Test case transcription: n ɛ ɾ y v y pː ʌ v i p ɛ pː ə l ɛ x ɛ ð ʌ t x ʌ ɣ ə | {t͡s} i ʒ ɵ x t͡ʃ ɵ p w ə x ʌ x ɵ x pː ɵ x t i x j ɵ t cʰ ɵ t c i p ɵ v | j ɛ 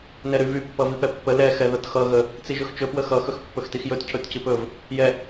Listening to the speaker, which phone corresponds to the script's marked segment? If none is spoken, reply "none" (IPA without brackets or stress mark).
t͡s